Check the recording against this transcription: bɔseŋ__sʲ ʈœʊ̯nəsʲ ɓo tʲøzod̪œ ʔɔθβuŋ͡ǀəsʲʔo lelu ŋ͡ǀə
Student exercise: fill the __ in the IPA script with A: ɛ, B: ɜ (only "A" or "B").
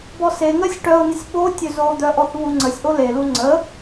B